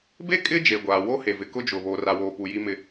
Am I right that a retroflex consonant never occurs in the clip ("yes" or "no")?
yes